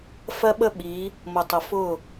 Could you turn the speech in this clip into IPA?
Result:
f ɜ˦ ɓ ə˦ ɓ i˨˦ | m ʊ˨ tˤ ʊ˨ f ʊ˦˨

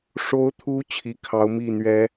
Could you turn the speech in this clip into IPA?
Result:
ʂ o˨˦ ʊ̯ t̪ʰ u˨˦ t͡ɕʰ i˨˦ kʰ ɑ˨˦ ʊ̯ m i˥˨ n̪ ɥ ɛ˨˦

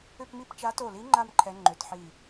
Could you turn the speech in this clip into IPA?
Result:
ʏ˥˧ p m i˥˧ p t͡ʃ a˨˦ t o˧˩ l i˨˦ ŋ͡ǃ a˥˧ m ǃʰ ɛ˨˦ ŋ͡ǃ ʏ˨˩˦ t ħ i˧˩

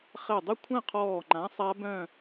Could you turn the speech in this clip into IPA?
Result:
χ ɛ˧˩ dˤ o˥˧ kʷʰ ɛ̃˥˧ qʰ ɔː˧˩ ŋ͡ǃ ã˨˥ sˤ a˦˥ b œ̃˥˧

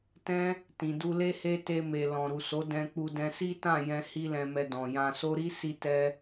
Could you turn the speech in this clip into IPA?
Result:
t ɛ̃˦ | t ĩ˨ d u˧ l e˦ h e˦ t e˧ m e˨ l ɔ̃˨ ɾ u˨ s o˨˦ d ɛ̃˧ k͡p u˧ d ɛ̃˧ s i˦ t ã˦˨ j ɛ̃˧ h i˧ l ɛ̃˨ m ɛ˨ d ɔ̃˨ j ã˧ s o˦ ɾ i˦ s i˧ t ɛ˧

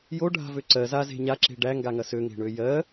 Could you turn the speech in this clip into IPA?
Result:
j o ɖʱ a̤ v ø ǀ ɜ z a z e̤ ɲ a ǁ e̤ ɖ æ ŋ ɡ a ŋ ɐ s ø ŋ e̤ ɳ ø j ɜ

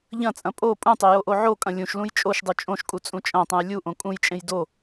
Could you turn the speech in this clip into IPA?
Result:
ʎ ɐ̃ t͡sʼ ɐ̃ pʼ o pʼ ũ tˤ e j o ʔ o ʕ o kʼ ɐ̃ lʲ ũ ʃ l ũ j t͡ʃʼ o ʃ dˤ u t͡ʃʼ õ ʃ kʼ u t͡sʼ ũ t͡ʃʼ ɐ̃ tˤ ũ j lʲ u ʔ õ kʼ ũ j t͡ʃʼ ẽ j d o

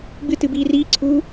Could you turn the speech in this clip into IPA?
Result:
ɡ͡b ɨ t ɨ b iː r iː ǀʰ uː

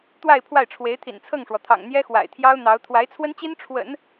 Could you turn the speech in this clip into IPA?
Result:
t̪ w a˥˧ ɪ̯ pʰ w a˥˩ ɪ̯ ʈ͡ʂʰ w e˧˥ ɪ̯ t̪ʰ ḭ˨˩ n t͡sʰ ɤ˥˩ ŋ ʂ w ɔ˩ t̪ʰ ɑ̰˨˩ ŋ n̪ j ɛ˥ x w a̰˨˩ ɪ̯ t̪ʰ j ɑ˥ ʊ̯ n̪ ɑ˧˥ ʊ̯ t̪ʰ w a˧˥ ɪ̯ t͡sʰ w ə˥ n t͡ɕ i˥ n ʈ͡ʂʰ w ə̰˨˩˦ n

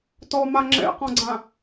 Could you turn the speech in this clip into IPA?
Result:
t ɔ m a ŋ͡ǁ ɛ̰ q ɔ̃ ɡ͡ǀ ã

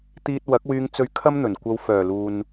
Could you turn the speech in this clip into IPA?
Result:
t̪ iː˧ t̚ w ɐ˨˥ k̚ w yː˧ ŋ t͡s ɵ˧ ɥ kʰ ɐ˥ m n̪ ɵ˨˩ n kʷ ɐ˧ w f œː˨˩ l uː˨ n

